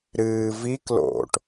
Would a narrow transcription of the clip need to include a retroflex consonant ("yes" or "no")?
yes